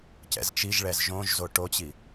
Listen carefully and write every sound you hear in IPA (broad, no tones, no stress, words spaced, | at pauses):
cɛ̰zt͡ʃiʒɭɛz ʒõʒzo ʈot͡ɕi